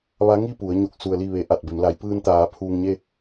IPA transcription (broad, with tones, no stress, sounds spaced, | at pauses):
ʋ a˧˥ ŋ i˥˨ p u˩˧ ə̯ ɲ o˧˩ k̚ s u˩ ə̯ l i˧˩ ʋ e˩˧ ʔ a˧˩ t̚ b e˩˧ m l a˩˧ j p ɯː˧ n t̪ aː˩˧ pʰ uː˧ ŋ ɲ e˥˨